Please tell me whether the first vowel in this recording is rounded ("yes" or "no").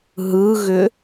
no